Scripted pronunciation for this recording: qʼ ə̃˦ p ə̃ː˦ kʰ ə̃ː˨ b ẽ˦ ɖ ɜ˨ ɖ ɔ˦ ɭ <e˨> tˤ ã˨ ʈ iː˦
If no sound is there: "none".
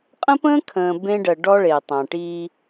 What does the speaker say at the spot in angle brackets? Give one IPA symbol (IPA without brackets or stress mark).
e˨